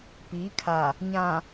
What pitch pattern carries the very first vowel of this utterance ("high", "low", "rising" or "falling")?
rising